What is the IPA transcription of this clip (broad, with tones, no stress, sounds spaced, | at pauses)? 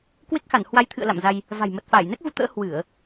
k w e˦˥ k̚ x a˧˩ n h w a˨˦ j t̪ʰ ɨ̰˧˨ ə̯ l a̰˧˨ m z a˧ j | v a̤˨˩ j m ə˨˩ t̚ f aː˧˩ j n ɛ˦˥ k̚ ɣ u˧ t̪ ə̰ː˧˥ h w ɨ˧˩˨ ə̯